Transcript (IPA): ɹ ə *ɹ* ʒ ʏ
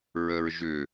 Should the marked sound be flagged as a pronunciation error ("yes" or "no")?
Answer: no